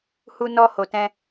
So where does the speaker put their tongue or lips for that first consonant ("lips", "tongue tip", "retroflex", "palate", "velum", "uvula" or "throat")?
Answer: throat